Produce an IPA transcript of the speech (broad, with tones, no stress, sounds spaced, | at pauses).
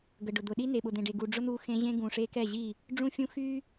ɡ ə˨ ɖ ʊ˨ d̪ ʊ˨ ɗ i˦ n e˨ ɓ ʊ˨ d̪ ẽ˨ ɖ e˨ ɡ u˨ ɖ͡ʐ ʊ˦ n̪ u˦ x ẽ˦ ʑ ẽ˦ ɡ ũ˨ ʂ e˦ k ɛ˦˨ ʑ i˦˨ | ɖ͡ʐ ũ˦ fʲ ũ˦ x y˦